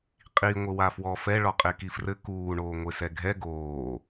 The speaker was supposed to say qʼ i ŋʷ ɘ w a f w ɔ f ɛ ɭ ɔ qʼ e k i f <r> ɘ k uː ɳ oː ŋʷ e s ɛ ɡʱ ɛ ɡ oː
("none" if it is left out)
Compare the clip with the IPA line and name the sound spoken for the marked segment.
r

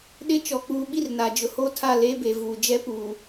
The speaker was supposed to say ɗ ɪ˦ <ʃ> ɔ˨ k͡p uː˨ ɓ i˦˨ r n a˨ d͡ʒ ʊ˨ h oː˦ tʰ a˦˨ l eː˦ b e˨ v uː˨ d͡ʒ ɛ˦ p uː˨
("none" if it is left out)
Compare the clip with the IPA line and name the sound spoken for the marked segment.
t͡ʃ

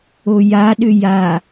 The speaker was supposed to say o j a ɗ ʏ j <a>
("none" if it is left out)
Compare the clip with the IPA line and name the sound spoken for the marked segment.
a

